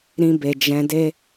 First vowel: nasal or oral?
nasal